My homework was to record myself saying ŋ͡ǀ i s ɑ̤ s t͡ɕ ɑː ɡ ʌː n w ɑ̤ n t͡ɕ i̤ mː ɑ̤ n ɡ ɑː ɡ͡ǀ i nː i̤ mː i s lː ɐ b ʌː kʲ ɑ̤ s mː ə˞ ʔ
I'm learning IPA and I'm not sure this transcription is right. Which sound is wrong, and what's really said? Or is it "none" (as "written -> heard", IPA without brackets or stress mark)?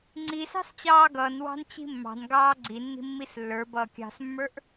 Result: ɐ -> ə˞